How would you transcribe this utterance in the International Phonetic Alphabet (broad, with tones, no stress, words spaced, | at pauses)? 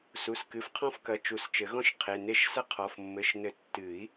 su˩˧˩skɨ˩˧˩f qʰɔ̃˦fkɐ˩˧˩ t͡ʃu˨˩˦st͡ʃɘ˨˩˦ɣɔ̃˦ʃ qʰe˩˧˩ne˥˩ʃ sɐ˦qʰɔ˩˧˩f mːɘ˩˧˩ʃnɘ˨˩˦ tːɨ˨˩˦i̯